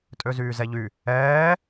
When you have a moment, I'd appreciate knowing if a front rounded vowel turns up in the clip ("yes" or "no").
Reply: yes